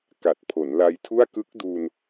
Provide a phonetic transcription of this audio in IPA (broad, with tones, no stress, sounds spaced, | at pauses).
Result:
k a˨˩ t̚ pʰ o˩˦ n l a˧ j tʰ u˥˩ a̯ k ɯ˦˥ k̚ d u˧ n